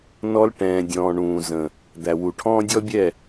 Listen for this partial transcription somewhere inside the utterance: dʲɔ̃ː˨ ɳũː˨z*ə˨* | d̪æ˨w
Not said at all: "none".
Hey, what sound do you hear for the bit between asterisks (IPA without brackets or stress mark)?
ə̃˨